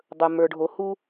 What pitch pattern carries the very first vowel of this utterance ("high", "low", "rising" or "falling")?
low